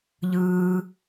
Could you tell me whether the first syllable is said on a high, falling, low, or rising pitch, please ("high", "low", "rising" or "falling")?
low